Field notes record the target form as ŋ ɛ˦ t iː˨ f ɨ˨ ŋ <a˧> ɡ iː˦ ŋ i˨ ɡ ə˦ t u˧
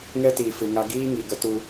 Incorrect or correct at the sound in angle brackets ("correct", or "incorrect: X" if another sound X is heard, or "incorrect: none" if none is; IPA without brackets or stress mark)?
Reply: correct